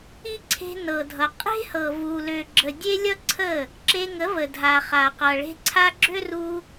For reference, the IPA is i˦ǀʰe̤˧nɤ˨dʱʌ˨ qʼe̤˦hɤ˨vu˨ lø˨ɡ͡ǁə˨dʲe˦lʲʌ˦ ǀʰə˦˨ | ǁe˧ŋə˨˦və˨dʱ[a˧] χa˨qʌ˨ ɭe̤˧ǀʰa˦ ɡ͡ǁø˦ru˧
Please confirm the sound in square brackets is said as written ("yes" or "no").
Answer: no